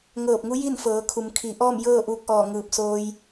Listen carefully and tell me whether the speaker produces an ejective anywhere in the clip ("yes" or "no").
no